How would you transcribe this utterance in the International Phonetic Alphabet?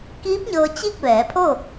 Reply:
k iː˧˥ p̚ ɲ ɤː˧ t͡ɕ i˥˨ k̚ ʋ ɛː˩˧ pʰ o˥˨

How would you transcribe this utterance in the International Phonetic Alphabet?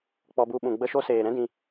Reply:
k͡p ɔ˧ b u˧ ɓ ũ˨ ɡ͡b ə˧ ʃ o˧ s eː˨ ɾ ɛ̃˦ d ĩ˧

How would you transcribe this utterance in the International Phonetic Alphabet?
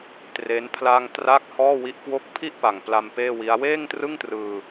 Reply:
t r e˦˥ n pʰ l a˧ ŋ t r a˦˥ k̚ h ɔː˥˩ w i˦˥ ʔ k w o˥˩ k̚ pʰ i˥˩ ʔ p a˨˩ ŋ p l a˧ m p eː˥˩ w i˦˥ a̯ w eː˥˩ ŋ t r ɯ˥˩ ŋ t r ɯː˧

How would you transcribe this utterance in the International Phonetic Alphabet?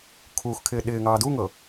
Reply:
kʰ uː x kʰ ɪː ɗ ɪː ŋ ɑː d u ŋ ɤ

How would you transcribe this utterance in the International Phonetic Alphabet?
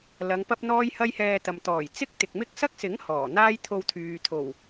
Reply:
l ɐ˨˧ ŋ p ɐ˥ p̚ n̪ ɔː˥ j h ɐ˥ j h ɛː˧ t̪ ɐ˨ m t̪ ɔː˨˩ j t͡s ɪ˥ k̚ t̪ ɪ˨ k̚ m ɪ˥ k̚ s ɐ˥ k̚ s ɪ˨˥ ŋ h ɔː˨˩ n̪ aː˥ j t̪ʰ o˧ w t̪ʰ yː˨ t̪ʰ o˨˩ w

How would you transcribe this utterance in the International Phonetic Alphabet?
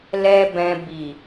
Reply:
l ɛ˦ b ɛ̃˧ b i˨

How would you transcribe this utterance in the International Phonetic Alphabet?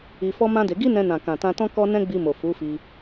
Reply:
i˧ f ɔ˦ m ã˦ d e˧ ɡ i˦ n ɛ̃˧ n ã˨ k ã˨ t ã˧ t ɔ̃˦ k ɔ˦ n ɛ̃˦ ɡ͡b i˧ m o˨ f u˨˦ f i˧

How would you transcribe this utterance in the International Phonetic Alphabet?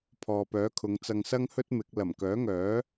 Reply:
pʰ ɔː˨ p œː˨˥ kʰ ʊ˨˧ ŋ t͡s ɐ˧ ŋ s ɐ˥ ŋ h ɵ˥ t̚ m ɪ˨˥ k̚ l ɐ˨˩ m k œː˨˥ ŋ œː˨˥

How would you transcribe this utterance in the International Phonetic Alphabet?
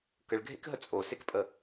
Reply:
k ə ɭ ɡʱ ḛ k ɦ ə t͡sʼ o s e k pʼ ə

